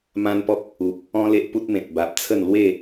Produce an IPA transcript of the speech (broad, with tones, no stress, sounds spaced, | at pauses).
m ã˦ n p ɔ˦ k̚ | u˨ p̚ | ɔ̃˦ l e˦ ʔ p u˦ t̚ m ẽ˨ t̚ b a˨ p̚ t͡sʰ ə˥˧ n l w e˥˧